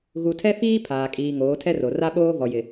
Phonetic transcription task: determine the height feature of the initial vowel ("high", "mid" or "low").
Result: high